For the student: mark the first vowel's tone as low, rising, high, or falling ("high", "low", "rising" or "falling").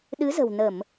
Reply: rising